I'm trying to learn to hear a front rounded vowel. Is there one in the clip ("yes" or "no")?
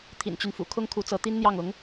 yes